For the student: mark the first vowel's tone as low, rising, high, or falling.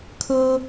high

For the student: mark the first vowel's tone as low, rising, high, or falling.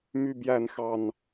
low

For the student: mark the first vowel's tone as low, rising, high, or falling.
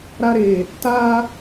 high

